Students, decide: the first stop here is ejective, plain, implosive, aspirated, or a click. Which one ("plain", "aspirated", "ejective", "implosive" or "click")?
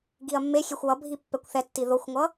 plain